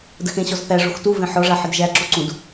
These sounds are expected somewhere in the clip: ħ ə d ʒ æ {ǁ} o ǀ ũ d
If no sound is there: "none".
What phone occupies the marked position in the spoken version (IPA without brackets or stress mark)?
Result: ǁ